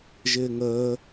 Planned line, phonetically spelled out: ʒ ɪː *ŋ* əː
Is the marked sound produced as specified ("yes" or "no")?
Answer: yes